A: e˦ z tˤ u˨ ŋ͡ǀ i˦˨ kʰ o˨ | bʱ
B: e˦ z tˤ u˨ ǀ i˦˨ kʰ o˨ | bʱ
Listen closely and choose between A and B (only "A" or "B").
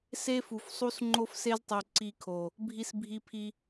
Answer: B